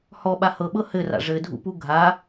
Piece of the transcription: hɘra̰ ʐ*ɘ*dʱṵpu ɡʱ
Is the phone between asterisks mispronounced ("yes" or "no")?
no